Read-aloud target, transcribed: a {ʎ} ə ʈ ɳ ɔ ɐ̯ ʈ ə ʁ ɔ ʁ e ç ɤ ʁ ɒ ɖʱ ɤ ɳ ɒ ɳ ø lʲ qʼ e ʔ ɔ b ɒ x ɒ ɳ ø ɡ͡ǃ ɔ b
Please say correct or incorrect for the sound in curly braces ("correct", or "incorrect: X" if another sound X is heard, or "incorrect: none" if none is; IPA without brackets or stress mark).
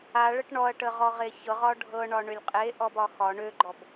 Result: incorrect: ɭ